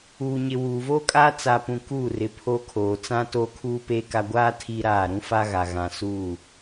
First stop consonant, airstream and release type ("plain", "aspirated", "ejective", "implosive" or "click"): ejective